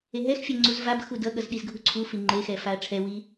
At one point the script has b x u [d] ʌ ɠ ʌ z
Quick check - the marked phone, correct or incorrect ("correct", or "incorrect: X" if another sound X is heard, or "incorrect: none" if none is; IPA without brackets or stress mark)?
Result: correct